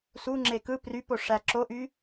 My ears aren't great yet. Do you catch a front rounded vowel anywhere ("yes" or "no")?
yes